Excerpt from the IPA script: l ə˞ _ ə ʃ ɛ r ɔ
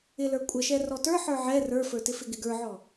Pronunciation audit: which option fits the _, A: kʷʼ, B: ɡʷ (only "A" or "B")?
A